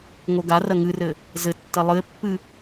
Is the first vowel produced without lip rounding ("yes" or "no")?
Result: no